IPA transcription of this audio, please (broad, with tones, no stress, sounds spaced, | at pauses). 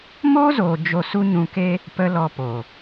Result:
m oː˦ z oː˨ d͡ʒ o˧ s u˦ ɲ ũ˧ k e˦ | p ə˧ l ɔ˧ p o˨